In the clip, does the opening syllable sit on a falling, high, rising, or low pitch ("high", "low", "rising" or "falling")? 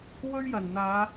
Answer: high